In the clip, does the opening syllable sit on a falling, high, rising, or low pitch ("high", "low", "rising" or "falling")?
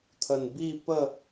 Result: low